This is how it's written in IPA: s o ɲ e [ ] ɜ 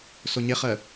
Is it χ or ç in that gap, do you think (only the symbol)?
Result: χ